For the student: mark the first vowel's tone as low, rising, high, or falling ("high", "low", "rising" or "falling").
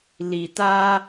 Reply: low